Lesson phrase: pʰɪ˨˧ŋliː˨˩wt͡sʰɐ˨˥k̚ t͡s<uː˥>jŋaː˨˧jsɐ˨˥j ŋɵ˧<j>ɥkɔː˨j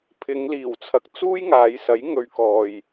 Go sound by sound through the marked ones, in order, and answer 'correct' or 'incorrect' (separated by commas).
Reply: correct, incorrect